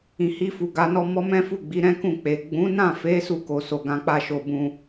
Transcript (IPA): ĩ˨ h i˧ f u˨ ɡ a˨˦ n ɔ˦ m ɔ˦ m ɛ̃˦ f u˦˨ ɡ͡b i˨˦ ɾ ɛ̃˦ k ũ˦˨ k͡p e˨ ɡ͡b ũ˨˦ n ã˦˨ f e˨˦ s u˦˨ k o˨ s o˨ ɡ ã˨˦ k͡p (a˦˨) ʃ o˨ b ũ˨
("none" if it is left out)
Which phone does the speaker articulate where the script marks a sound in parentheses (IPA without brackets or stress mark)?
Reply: a˦˨